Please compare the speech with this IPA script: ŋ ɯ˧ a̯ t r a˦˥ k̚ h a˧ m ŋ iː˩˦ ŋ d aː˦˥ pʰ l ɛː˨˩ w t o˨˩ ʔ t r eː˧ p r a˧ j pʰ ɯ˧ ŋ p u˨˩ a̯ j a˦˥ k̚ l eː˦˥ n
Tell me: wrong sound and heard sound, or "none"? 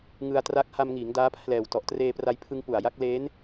o˨˩ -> ɔ˨˩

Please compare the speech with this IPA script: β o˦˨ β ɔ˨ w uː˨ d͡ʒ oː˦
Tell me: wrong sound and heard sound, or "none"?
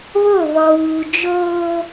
none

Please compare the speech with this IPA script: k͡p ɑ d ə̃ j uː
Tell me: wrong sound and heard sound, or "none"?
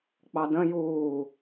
none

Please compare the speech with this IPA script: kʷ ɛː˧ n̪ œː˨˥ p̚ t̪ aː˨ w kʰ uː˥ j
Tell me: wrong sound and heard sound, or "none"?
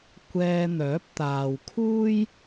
none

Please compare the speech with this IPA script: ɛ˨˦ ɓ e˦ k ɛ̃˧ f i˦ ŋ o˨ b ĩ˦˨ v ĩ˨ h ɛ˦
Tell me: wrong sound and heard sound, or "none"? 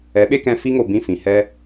v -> f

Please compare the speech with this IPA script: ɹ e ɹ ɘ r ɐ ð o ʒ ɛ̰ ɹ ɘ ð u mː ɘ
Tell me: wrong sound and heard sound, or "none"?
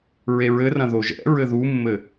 ɐ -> ɐ̃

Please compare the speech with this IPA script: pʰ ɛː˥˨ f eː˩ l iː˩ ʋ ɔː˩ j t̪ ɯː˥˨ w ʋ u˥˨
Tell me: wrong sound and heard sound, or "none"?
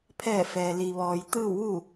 eː˩ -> ɛː˩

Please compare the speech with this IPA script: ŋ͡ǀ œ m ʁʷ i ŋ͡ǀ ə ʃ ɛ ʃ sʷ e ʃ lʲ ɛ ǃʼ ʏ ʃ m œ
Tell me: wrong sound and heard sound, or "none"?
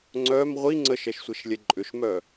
none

